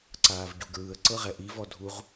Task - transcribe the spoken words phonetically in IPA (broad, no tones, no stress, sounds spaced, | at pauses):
ǀ aː v ɟ u ɡ ɹ ɯ ə̯ ǀ ɤ ʁ ɛ ʔ i v ɔ dʱ u ʁ